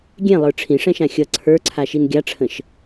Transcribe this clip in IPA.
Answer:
ɡʲɛ̃lˠə˞ ʈ͡ʂʰĩʂɛ̃ʃã xʲʌ ǀʰə˞ǀʰaʃin ɡʲaʈ͡ʂʰə̃ʃ

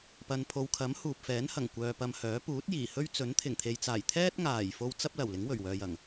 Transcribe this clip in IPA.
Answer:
pɐ˨npʰo˨wkʰɐ˨˥m huː˨p̚fɛː˨˥nhɐ˨˩ŋ kʷœː˧pɐ˧mhœː˨˥ puː˨˥t̚jiː˨˩hɵ˥ɥt͡sɵ˨˥n t̪ʰɪ˨˩ŋt̪ʰe˨jt͡saː˨˩j t̪ʰɛː˥t̚ ŋaː˨˩jfo˧w t͡sɐ˥p̚lɐ˨˩w lɪ˨˥ŋwɵ˨˩ɥwœː˨jɐ˨˩ŋ

